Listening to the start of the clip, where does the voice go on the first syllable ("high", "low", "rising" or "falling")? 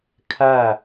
falling